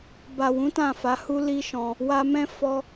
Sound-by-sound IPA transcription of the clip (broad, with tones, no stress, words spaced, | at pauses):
ba˨wũ˨˦ tã˦˨fa˨˦hu˦ li˦ʃɔ̃˧ | wa˧mɛ̃˦ fɔ˧